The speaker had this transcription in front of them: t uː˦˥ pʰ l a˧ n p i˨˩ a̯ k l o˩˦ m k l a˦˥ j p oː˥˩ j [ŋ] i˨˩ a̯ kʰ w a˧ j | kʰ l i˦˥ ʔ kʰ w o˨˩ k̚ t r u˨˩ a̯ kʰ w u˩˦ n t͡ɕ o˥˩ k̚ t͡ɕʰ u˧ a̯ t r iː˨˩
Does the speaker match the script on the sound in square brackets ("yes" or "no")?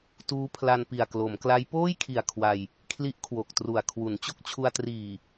no